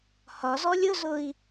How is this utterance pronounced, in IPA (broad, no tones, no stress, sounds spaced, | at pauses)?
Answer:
h ɒ z ɔ lʲ ʊ z ʊ i̯